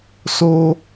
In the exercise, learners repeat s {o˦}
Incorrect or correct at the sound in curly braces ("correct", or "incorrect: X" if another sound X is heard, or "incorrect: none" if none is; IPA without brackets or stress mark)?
correct